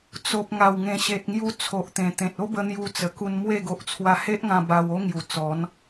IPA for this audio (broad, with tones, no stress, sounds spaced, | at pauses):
t͡s o˨ p̚ ŋ a˨˩ w ŋ ẽ˨˩ ɕ e˨ t̚ ŋ j u˧ t͡sʰ o˨ ʔ t̪ ẽ˨˩ t̪ ẽ˨ t̚ o˦ b ə˧ n̪ j u˧ t͡s ə˨˩ k u˧ n m w e˥˧ ɡ o˨ ʔ t͡sʰ w a˧ h e˦ ʔ ŋ ã˧ b a˧ w o˦ ŋ j u˨˩ t͡s ɔ˨˦ n